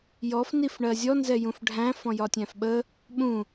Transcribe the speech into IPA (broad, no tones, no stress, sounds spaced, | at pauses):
j ɔ f n i f ɳ ɜ zʲ ɔ n z ɛ j ũ f ɖʱ æ̃ f ɔ̃ j ɒ tʲ æ̃ f ɓ ə | ɓ ũ